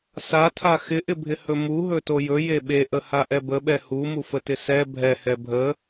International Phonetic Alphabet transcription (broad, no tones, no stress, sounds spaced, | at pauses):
s a tʰ a x ɪ ʔ ɪ bʱ ɪ h ɵ m u ɦ ɵ t o j ɵ j e ɓ e ʔ ə h a ʔ ɛ b ə ɓ ɛ h u m u f ə t ɪ s ɛ bʱ ɛ h ɛ bʱ ə